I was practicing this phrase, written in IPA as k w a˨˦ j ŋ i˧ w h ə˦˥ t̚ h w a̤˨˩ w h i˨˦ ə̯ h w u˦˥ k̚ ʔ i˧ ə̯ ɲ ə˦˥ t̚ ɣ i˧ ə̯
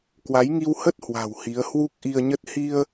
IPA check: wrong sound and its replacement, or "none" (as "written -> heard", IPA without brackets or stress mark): ɣ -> h